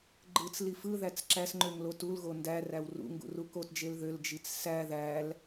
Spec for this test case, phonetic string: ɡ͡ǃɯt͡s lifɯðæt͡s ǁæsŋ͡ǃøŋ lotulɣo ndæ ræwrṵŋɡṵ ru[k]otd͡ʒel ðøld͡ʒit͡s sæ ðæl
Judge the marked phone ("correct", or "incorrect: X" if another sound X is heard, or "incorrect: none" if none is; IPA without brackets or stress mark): correct